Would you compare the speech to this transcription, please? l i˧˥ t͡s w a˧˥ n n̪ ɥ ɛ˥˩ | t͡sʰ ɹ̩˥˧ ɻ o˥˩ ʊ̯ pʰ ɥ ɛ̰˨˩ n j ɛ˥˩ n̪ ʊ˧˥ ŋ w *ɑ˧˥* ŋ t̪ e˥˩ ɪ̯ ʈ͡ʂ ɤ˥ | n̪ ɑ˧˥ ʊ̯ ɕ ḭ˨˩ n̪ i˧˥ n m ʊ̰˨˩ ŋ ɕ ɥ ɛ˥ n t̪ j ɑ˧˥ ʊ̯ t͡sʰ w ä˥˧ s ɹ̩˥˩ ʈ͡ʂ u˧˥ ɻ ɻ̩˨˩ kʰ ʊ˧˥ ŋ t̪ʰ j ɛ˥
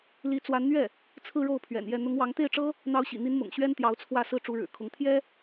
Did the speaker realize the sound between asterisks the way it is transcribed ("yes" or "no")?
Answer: yes